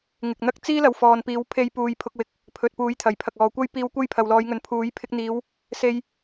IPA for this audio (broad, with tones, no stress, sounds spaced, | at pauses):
ŋ ɪ˨ k̚ n̪ ɐ˥ k̚ t͡s iː˥ l ɐ˨ w f ɔː˨ n p iː˨˥ w pʰ e˧ j p uː˨ j pʰ ʊ˧ k̚ w ɪ˨ k̚ | pʰ ɵ˨ t̚ p uː˨˥ j t̪ʰ ɐ˨˩ j pʰ ɐ˨ k̚ ɔː˨ kʷ ɐ˥ j p iː˧ w kʷ ɐ˥ j pʰ ɐ˨ w l ɔː˨˧ j ŋ ɵ˨ n pʰ uː˨˥ j pʰ ɪ˧ k̚ n̪ iː˨˧ w | s e˧ j